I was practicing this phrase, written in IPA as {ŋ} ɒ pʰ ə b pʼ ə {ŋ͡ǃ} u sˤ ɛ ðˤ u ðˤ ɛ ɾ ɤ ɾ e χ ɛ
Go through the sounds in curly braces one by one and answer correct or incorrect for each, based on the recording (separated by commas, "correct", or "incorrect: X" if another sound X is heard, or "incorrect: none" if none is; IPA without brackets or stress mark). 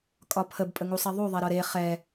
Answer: incorrect: kʼ, incorrect: ŋ